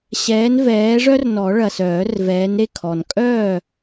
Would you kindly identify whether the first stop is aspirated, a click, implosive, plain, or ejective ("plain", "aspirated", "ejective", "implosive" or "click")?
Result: aspirated